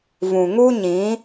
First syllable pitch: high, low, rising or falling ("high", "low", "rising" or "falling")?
low